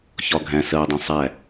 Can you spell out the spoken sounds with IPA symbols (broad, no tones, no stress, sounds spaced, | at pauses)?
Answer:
ç ɒ ɡʱ æ̃ s ɜ dˤ ɑ̃ sˤ æ